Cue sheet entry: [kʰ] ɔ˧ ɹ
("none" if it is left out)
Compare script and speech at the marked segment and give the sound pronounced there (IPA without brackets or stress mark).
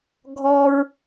ɡʱ